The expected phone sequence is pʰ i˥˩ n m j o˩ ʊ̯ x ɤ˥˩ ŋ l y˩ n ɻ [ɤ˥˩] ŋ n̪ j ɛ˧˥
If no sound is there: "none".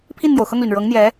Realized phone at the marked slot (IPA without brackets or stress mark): ɤ˧˥